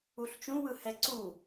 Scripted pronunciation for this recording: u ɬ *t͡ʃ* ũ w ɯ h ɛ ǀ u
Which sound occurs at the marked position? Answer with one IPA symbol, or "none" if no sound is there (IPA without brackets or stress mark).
t͡ʃ